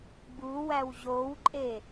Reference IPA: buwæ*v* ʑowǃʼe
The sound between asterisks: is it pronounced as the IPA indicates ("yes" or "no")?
no